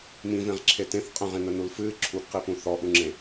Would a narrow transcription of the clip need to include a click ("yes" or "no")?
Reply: yes